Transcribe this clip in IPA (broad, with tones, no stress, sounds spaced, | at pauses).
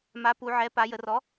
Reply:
m a˩˥ p u˩˧ ʕ ɛ˩˥ p a˩˧ j ə˩˧ r ɔ˩˥